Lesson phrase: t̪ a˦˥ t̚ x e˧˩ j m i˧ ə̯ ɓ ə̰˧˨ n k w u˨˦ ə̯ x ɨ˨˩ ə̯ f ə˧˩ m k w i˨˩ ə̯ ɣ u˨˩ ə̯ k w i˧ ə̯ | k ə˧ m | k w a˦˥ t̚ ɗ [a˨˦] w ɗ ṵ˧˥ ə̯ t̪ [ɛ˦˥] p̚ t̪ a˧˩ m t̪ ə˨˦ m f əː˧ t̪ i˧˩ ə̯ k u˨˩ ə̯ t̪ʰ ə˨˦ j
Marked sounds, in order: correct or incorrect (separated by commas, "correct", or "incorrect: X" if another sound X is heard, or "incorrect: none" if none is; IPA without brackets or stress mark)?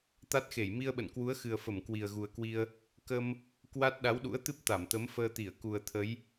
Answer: correct, incorrect: ɨ˦˥